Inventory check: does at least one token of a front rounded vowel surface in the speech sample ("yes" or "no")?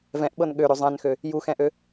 yes